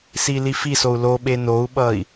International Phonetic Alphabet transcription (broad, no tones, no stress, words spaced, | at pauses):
silifisou̯ loɓe nou̯ɓʌi̯